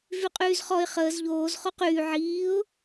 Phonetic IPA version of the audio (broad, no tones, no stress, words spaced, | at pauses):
vyqʼyːzχɔɪ̯ χəːz ʎoːz χoqyː ʕiːʊ̯